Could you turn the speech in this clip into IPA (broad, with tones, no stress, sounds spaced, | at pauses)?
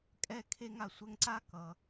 kʼ ɛ˧ kʰ e˧ ŋ a˧ sʷ ɛ˧ ŋ ǀ a˥ k ʌ˩